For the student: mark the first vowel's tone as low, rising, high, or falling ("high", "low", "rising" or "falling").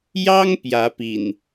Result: high